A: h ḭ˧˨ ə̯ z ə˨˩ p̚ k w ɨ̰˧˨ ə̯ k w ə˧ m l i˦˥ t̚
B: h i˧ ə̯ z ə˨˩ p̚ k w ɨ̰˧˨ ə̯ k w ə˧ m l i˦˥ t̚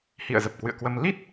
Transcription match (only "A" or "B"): A